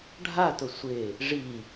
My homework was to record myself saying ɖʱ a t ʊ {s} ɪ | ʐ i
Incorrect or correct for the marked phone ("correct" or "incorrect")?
incorrect